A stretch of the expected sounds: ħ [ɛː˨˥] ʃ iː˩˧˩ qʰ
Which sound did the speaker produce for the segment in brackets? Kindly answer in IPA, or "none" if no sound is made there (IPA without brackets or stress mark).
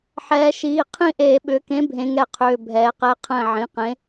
ɛː˩˧